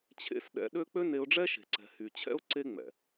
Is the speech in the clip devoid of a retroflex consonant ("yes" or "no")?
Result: no